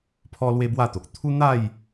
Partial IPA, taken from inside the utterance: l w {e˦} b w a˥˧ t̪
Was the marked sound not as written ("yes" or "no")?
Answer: no